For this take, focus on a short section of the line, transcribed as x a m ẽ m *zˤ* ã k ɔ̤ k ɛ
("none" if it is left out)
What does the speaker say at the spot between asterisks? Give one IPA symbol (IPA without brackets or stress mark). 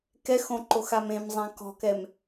zˤ